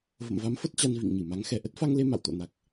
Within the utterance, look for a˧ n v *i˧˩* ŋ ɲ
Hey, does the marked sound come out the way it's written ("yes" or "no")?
no